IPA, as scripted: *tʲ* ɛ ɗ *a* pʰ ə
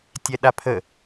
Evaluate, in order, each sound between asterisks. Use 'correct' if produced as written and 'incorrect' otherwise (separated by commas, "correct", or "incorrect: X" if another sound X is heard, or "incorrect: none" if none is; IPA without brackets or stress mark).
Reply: correct, correct